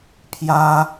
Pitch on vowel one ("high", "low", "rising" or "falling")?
high